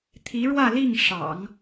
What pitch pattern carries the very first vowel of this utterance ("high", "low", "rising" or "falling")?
rising